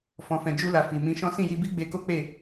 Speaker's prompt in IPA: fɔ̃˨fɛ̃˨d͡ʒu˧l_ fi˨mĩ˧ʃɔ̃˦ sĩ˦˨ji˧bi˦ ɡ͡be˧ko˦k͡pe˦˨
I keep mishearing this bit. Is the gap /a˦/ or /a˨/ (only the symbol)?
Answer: a˨